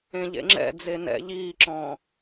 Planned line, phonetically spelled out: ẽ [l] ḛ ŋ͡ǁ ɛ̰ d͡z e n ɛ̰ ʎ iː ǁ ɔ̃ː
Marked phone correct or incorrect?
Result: incorrect